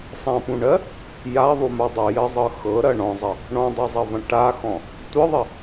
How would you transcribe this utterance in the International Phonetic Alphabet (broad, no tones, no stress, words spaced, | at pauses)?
sˤãpũɳɜ | jaðˤuma dˤɯjɜzˤɤ xɤɾɐ ɳɔ̃zˤɐ | ɳɔ̃dˤɤzˤɐvɐ̃ ʈaxɔ̃ | tʷɯðˤɐ